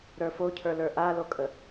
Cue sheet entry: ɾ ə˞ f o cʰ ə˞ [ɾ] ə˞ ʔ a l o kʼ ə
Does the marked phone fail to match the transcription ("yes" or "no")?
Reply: yes